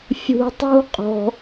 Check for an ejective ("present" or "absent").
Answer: present